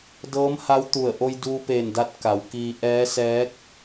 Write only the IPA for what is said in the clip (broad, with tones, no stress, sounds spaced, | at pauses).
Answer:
d ɤː˧˥ m h a˧˥ w t̪ u˧˩ ə̯ ʔ o˧ j d uː˧ p eː˧˩ n d a˧ t̚ k a˩˧ w k iː˧ ʔ ɛː˧˥ s ɛː˧˥ k̚